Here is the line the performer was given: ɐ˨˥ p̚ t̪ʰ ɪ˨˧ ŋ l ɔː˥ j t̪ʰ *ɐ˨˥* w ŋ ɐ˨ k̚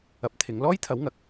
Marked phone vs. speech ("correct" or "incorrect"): correct